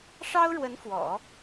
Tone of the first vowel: high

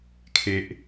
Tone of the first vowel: low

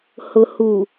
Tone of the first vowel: low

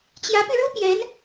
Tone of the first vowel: rising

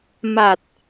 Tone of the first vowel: low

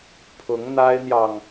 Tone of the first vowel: rising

